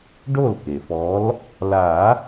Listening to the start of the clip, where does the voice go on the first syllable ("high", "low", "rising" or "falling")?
falling